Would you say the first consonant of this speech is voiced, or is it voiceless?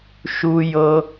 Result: voiceless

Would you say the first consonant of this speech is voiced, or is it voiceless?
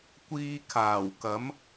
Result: voiceless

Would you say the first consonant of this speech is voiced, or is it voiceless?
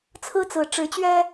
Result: voiceless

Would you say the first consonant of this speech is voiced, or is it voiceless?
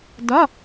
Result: voiced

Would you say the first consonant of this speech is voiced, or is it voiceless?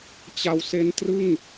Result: voiceless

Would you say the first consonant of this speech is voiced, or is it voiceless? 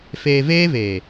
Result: voiceless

